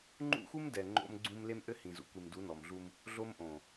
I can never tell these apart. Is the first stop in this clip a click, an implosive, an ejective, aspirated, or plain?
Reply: click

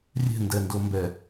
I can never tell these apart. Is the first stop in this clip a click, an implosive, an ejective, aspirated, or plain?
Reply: plain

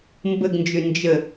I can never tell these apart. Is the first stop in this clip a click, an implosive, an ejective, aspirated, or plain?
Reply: plain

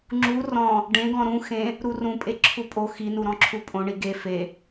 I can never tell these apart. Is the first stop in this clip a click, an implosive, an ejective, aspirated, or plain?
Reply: click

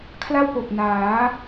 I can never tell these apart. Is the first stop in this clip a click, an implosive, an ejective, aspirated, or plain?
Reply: aspirated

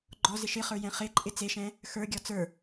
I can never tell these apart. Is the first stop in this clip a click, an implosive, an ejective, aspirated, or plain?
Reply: click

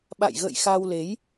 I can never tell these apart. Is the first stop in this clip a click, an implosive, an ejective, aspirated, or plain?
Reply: implosive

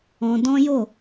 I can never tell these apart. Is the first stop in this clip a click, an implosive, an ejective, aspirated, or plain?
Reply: plain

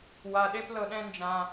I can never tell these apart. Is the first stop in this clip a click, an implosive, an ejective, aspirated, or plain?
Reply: implosive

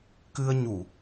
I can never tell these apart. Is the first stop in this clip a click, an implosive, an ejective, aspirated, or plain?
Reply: plain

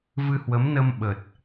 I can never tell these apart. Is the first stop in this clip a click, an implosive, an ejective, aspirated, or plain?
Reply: implosive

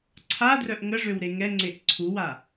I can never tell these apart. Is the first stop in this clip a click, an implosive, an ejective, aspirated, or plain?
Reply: click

